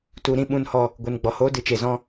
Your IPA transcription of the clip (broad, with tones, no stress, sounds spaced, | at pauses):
t u˧ ɾ ĩ˦ ɓ ũ˧ n h ɔ˧ | ɡʷ ɨ˨ n ɡ͡b ɔ˨ h oː˦ d ɨ˨ t͡ʃ e˨ z ɔ̃˦